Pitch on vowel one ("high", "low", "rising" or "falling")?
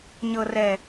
low